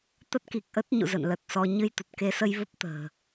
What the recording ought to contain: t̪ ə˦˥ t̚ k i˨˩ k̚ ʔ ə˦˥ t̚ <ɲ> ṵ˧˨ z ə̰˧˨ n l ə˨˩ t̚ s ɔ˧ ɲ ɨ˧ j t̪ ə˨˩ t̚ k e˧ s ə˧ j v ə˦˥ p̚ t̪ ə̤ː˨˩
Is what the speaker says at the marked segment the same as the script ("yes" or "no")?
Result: yes